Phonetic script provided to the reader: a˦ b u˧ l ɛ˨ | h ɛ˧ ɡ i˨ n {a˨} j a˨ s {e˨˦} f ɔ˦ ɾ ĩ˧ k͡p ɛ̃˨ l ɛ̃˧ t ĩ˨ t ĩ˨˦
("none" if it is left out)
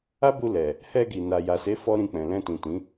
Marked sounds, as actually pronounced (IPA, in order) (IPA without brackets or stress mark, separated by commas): a˨, e˨˦